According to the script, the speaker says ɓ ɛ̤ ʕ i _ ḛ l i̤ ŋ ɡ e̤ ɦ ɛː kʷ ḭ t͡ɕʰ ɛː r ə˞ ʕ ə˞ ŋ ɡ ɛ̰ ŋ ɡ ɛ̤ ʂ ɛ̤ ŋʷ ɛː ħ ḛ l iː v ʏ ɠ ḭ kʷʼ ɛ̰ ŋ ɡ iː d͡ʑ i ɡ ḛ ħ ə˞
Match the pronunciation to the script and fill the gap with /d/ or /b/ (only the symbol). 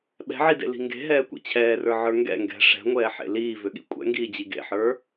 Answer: d